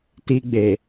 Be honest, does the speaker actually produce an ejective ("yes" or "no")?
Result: no